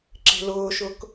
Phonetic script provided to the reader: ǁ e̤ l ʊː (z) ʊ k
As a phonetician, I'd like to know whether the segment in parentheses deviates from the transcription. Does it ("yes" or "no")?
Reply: yes